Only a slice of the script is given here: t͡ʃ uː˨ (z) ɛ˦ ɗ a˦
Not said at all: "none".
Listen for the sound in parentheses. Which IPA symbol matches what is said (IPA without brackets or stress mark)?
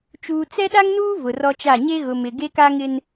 t͡s